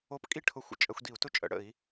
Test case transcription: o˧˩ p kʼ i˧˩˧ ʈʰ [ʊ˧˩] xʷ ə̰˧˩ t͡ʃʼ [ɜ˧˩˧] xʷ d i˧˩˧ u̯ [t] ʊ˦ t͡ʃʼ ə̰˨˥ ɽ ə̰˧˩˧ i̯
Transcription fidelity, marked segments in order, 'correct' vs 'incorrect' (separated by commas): correct, correct, correct